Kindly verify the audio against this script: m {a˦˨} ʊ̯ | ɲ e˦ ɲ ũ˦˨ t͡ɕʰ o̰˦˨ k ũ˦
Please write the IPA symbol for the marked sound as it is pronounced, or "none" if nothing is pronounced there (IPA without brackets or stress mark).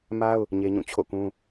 a˦